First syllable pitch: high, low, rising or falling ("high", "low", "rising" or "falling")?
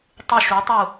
falling